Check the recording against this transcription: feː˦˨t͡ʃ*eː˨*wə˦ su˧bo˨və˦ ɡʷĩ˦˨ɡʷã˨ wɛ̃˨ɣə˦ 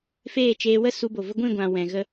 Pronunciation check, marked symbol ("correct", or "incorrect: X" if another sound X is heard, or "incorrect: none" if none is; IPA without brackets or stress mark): incorrect: eː˧